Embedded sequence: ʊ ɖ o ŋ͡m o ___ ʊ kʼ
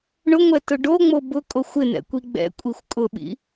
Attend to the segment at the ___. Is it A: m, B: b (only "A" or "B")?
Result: B